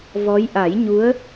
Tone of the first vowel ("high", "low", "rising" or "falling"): rising